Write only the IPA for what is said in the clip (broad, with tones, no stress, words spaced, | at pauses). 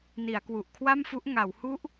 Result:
ni˩˦a̯kwu˨˩ʔkʰwa˥˩mfu˦˥ʔ ŋa˩˦whu˦˥ʔ